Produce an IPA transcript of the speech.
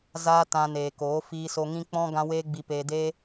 z aː˦ t ã˧ n eː˨ k oː˨˦ f iː˧ s o˧ ŋ ĩ˦ k͡p ɔ̃˦ ɡ ã˦ w eː˦ ɡ͡b i˧ p eː˧ d eː˦

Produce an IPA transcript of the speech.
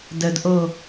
d ə d ʔ o

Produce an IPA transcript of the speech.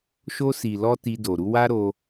ʃ o˧ s i˨ l ɔ˧ t i˧ d o˨ ɾ u˧ w a˦ ɾ o˧

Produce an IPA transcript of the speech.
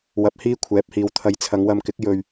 w ɐ˧ p̚ h iː˥ kʷʰ ɛː˨˥ p̚ h iː˨ w t̪ʰ ɐ˧ j t͡sʰ ɐ˨˧ ŋ w ɐ˧ m k ɪ˨˥ k̚ j ɵ˨ ɥ

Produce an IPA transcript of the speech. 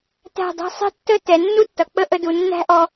t æ̤˧˩ dˤ æ̤˧ sˤ i̤˧ tː ə˥˧ t ɛ˩˧ nː u˥ tː ʌ˩˧ k͡p ə˥˧ ʔ ə˧ d u˩˧ nː æ̤˥ ʔ ɔ˧

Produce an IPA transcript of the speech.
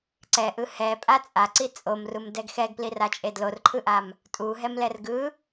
ǀ ɛ ʔ ɯ h ɛ pʼ a t͡sʼ a ǀ i t͡sʼ o m r u m d ɛ ɡ x ɛ ɡ p l i r a t͡ʃʼ e d l o r ǃʰ ɯ ʔ a m | tʼ u ɦ ɛ m l ɛ r ɡ ɯ

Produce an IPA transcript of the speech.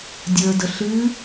dʲ ə˞ d ə ɬ ɨ

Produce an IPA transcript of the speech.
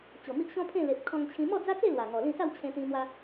t͡ɕ o˨˩ m i˦ ʔ ɕ ɔ̃˦ pʰ ẽ˥˧ l e˨ p̚ kʰ ɔ̃˧ ŋ t͡ɕʰ ĩ˧ m ɔ˥˧ d͡z a˦ t͡s e˥˧ l w a˨˩ ŋ ɔ˨˩ l ĩ˥˧ s a˥˧ w t͡ɕʰ ẽ˧ t̪ ĩ˧ m w a˦

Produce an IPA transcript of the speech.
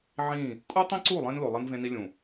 ʕ ĩ˦˨ | kʼ u˦ tˤ ĩ˦ ǀ u˦˨ lˠ ẽ˦ n l o˨ lˠ ɐ˦ n v ẽ˦ n i˦ lʲ ũ˨

